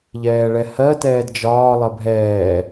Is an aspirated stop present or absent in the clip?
absent